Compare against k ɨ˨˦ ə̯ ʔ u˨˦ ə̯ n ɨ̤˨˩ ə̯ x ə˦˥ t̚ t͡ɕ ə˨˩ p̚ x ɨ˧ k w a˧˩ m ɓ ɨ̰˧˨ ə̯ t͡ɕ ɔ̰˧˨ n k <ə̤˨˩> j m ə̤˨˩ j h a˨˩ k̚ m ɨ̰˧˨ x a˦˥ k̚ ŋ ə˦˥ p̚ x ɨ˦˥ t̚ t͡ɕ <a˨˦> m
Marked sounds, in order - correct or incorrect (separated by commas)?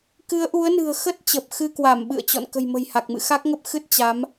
correct, correct